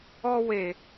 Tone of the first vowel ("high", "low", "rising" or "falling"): high